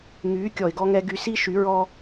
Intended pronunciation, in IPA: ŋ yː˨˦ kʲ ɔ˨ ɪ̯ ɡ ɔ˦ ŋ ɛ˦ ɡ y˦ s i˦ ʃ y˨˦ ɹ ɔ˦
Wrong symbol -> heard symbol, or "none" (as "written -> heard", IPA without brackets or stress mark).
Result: none